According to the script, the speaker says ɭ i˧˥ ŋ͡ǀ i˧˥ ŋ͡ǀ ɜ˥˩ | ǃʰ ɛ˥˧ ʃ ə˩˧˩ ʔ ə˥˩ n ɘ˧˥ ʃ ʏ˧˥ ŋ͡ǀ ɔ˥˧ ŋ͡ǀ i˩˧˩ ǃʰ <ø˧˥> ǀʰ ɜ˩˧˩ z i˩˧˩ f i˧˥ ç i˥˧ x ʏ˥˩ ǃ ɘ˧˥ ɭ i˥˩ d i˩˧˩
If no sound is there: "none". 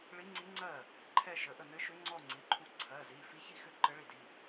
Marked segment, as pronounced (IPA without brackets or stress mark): u˧˥